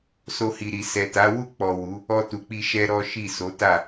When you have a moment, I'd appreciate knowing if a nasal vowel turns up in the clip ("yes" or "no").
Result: no